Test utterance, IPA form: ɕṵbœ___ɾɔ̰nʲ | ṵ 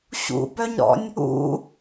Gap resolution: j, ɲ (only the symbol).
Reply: ɲ